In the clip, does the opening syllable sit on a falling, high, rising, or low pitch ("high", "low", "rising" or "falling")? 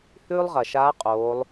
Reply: high